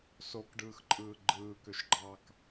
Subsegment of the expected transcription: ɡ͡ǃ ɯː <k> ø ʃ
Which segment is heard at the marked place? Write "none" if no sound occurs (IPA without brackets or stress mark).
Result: k